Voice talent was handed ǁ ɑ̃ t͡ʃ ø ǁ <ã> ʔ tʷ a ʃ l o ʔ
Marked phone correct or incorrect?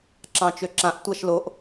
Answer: correct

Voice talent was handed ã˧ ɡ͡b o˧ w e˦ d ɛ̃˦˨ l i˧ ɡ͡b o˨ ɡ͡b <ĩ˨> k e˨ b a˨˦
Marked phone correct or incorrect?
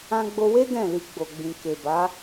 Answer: correct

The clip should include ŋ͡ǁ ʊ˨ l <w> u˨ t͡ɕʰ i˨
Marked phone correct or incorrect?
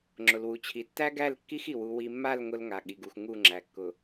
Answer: correct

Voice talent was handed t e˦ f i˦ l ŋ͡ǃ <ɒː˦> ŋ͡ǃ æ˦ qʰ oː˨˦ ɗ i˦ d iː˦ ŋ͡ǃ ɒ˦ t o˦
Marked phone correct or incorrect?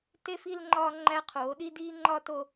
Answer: correct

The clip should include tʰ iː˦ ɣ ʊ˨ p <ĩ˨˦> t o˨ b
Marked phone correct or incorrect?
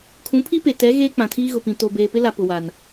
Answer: incorrect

